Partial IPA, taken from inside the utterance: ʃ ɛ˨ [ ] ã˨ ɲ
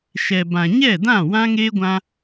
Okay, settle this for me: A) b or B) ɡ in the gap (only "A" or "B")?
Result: A